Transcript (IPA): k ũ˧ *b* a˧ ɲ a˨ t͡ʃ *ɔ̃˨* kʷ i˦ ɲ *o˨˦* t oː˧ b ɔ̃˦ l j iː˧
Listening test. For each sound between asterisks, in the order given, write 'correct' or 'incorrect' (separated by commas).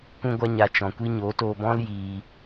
incorrect, correct, correct